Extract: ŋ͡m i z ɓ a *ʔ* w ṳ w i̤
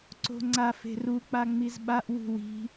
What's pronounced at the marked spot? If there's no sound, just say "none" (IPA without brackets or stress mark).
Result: ʔ